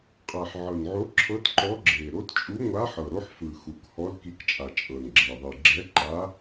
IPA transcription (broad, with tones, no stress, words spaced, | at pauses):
qʼa˨˩ħʕɤ˨˩nʕo˧˥ǁʰɤ˧˥t ǃɔ˧˥ɡ͡ǁe˨˩ ɾo˧˥tt͡ʃʼu˧˥ŋʷa˧˥ ħɤ˨˩ ɾo˧˥ħfɯ˨˩xu˨˩khɔ˧˥l ki˧˥kt͡ʃʼa˨˩ t͡ʃʼɤ˨˩nɡ͡ǁe˨˩ ðˤi˨˩ ɡ͡ǁɛ˧˥ǃa˧˥